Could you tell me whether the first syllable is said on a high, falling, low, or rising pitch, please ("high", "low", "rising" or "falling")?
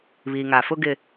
low